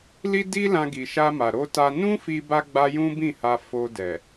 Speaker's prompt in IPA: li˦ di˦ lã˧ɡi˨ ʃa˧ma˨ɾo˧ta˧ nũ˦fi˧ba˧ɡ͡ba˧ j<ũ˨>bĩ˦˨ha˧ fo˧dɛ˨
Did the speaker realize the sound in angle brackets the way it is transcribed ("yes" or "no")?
no